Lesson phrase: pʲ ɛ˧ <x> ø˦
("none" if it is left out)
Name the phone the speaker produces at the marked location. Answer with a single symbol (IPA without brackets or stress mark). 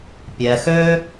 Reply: x